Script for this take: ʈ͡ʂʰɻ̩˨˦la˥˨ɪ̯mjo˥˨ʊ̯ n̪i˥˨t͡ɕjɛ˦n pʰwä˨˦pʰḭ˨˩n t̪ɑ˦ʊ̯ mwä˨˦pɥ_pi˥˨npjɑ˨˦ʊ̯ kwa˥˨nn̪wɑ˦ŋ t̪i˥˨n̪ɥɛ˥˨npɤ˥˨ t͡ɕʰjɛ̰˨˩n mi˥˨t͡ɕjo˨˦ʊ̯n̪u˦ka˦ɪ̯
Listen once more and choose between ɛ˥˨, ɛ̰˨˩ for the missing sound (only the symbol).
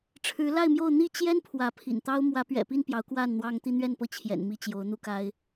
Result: ɛ̰˨˩